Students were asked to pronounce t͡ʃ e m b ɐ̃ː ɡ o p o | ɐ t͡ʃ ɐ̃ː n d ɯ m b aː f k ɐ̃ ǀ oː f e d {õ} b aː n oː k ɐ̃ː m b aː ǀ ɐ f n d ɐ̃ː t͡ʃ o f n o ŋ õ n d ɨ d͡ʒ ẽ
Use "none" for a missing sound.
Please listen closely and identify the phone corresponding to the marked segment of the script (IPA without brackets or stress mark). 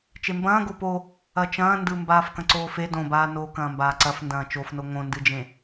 õ